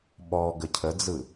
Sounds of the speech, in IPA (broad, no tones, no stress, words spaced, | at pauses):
ɓɔ ɡəcʰəd͡zɯ